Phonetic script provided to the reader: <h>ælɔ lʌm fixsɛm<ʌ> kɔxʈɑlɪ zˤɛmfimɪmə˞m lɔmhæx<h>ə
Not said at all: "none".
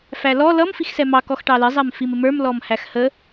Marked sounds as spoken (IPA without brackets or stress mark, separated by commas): f, ɑ, h